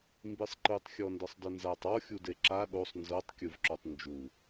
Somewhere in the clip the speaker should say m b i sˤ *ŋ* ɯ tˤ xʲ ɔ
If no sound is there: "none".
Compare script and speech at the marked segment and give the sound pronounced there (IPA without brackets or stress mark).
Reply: ǃ